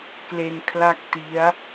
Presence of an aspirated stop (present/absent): present